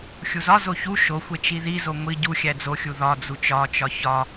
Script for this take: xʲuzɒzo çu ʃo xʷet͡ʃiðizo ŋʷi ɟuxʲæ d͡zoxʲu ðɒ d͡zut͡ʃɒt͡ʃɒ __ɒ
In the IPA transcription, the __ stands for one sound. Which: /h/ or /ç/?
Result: ç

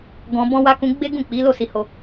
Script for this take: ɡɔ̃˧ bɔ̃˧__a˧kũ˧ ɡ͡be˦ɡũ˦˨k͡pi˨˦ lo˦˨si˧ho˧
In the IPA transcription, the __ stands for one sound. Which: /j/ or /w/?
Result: w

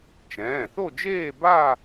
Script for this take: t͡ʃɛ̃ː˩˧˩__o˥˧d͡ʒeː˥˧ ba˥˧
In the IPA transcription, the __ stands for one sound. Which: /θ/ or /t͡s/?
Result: θ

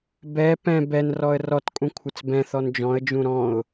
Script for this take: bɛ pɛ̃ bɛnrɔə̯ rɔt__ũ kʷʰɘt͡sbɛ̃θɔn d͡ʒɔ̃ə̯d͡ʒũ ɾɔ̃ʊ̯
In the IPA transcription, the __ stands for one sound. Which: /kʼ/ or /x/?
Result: kʼ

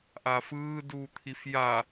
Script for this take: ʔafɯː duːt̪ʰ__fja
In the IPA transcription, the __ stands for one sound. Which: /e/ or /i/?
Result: i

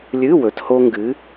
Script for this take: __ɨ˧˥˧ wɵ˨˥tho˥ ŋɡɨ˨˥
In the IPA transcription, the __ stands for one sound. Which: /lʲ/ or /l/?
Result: lʲ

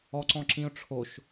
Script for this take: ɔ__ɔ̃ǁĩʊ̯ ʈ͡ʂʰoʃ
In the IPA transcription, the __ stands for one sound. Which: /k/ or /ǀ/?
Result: ǀ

